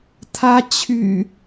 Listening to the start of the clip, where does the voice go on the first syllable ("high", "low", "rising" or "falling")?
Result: high